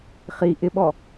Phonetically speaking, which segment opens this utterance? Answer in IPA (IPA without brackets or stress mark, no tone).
χ